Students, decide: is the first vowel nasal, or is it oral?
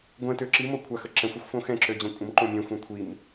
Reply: nasal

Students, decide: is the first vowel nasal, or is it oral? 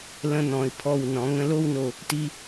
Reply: nasal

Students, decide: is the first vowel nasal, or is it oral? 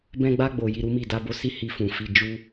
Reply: nasal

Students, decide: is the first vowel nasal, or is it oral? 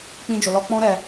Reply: nasal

